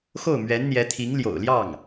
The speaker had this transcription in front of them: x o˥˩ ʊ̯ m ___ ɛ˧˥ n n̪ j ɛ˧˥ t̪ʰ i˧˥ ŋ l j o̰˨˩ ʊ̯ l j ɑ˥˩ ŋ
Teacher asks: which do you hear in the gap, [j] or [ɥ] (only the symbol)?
ɥ